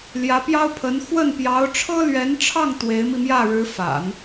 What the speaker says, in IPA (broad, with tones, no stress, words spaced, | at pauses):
ljä˧˥pjɑ˥ʊ̯pʰə˧˥n xwə˥˩n pjɑ˧˥ʊ̯ʈ͡ʂʰɤ˥lɥɛ˧˥nʈ͡ʂʰɑ˥˩ŋ t̪we˧˥ɪ̯mi˧mjä˥˩ ɻɻ̩˧˥ fa̰˨˩˦n